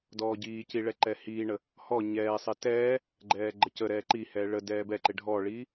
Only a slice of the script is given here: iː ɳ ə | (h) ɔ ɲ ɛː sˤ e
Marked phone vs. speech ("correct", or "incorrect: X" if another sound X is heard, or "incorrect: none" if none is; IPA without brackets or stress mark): correct